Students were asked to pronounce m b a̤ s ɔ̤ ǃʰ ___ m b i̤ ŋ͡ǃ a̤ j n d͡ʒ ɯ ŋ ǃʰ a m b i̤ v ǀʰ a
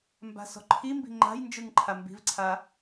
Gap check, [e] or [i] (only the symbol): i